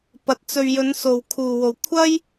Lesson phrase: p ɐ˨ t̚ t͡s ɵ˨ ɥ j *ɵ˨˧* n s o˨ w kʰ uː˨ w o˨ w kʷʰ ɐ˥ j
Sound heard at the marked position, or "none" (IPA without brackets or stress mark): ɵ˨˧